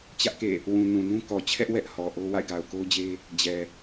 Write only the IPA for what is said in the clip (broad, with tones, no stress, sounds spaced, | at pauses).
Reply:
t͡ɕ ä˦ ʔ k ḛ˦˨ | w ũ˨ n ũ˨ n ũ˦ k ɔ˨ t͡ɕʰ ɛ˦ ʔ w ɛ˦ ʔ h ɔ˨ ʔ o˦ w a̰˦˨ ɪ̯ ɡ a˨ ʊ̯ k o˦ ʊ̯ d͡ʑ e˦ | d͡ʑ ɛ˨